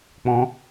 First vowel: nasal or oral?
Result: nasal